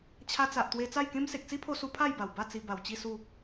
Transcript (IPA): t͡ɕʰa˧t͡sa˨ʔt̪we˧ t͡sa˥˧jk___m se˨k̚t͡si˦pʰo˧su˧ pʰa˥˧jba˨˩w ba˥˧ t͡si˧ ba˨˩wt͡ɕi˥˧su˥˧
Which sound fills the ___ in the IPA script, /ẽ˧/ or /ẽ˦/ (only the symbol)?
ẽ˦